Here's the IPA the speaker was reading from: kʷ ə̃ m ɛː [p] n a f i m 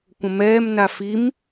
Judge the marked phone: incorrect: m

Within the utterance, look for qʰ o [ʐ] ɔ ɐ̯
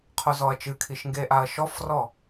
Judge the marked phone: incorrect: z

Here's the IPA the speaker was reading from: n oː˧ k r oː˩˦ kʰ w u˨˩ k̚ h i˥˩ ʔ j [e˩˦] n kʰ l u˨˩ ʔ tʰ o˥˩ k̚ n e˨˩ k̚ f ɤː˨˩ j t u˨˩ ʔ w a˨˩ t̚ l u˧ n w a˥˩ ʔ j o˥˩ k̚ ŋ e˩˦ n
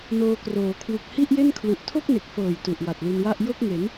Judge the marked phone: incorrect: e˥˩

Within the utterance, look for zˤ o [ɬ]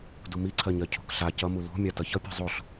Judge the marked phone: correct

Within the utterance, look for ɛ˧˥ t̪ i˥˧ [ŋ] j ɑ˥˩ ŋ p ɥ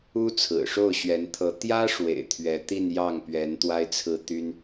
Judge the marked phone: incorrect: n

